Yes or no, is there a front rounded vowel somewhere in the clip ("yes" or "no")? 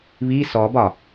no